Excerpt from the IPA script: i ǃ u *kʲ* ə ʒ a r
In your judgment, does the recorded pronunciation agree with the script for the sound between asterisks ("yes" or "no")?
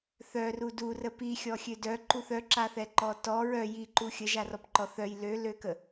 no